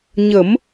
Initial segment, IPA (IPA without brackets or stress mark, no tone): ɲ